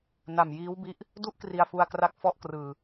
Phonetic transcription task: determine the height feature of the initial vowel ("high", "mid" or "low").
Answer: low